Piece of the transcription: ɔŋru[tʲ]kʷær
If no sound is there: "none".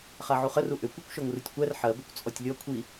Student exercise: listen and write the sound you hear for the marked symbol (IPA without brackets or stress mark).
tʲ